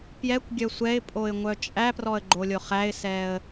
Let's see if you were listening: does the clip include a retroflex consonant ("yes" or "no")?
no